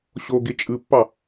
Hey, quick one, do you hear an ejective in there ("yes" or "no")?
yes